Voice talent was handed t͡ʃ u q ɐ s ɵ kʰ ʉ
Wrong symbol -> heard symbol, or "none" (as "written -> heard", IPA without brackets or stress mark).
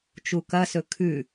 q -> k